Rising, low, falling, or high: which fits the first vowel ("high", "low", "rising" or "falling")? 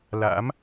rising